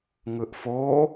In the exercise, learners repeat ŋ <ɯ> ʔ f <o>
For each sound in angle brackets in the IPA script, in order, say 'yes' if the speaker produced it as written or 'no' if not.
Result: yes, yes

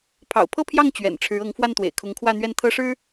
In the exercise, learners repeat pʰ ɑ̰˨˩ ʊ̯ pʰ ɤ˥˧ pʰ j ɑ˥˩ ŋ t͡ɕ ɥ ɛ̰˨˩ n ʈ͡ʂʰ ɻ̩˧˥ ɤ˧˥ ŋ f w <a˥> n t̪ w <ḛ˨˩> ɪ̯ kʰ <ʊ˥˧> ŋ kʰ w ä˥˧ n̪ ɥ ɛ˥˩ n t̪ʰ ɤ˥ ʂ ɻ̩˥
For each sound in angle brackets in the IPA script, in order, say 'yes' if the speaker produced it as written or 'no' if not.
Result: no, yes, no

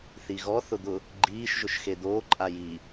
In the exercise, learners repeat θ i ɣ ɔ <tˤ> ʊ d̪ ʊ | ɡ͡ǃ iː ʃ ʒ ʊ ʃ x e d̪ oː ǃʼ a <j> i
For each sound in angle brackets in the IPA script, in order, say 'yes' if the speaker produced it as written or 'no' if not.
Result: no, yes

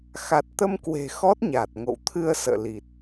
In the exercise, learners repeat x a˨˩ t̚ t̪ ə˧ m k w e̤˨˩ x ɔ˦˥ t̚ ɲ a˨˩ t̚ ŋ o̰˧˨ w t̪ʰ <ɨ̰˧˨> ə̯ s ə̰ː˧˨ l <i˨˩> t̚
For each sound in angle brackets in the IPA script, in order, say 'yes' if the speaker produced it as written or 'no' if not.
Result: no, yes

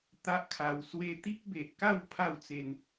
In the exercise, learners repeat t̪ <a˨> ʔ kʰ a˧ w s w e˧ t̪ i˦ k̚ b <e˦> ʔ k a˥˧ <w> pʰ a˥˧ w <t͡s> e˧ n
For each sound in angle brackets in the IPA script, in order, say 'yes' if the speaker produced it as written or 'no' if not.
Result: no, no, yes, yes

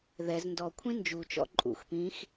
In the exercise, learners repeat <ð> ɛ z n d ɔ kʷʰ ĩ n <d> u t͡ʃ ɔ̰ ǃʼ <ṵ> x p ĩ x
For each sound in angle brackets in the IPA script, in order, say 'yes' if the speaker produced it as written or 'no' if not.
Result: yes, no, yes

